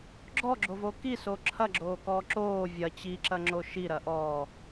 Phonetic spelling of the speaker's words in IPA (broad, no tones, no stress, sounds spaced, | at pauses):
ɡ͡ǁ ɔ ɡ͡ǁ o v o k i s o ǁʰ ɐ ɡ͡ǁ oː k ɔː ǁ oː vʲ ɐ t͡ɕ i ǁ ɐ ŋ͡ǁ o ʃ i ɾ ɐ ʔ ɔ